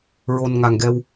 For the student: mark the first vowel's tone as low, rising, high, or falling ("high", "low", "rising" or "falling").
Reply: low